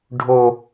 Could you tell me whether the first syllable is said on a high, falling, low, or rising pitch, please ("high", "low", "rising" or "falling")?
high